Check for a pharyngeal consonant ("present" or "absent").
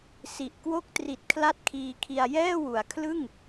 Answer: absent